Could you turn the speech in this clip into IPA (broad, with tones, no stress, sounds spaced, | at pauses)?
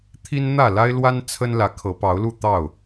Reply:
t̪ʰ i˦ n n̪ ä˥˨ l a˦ ɪ̯ l w a˦ n t͡sʰ ə˦ n l ä˨˦ kʰ ɤ˨˦ p ɑ˨˦ ʊ̯ l u˥˨ t̪ ɑ˥˨ ʊ̯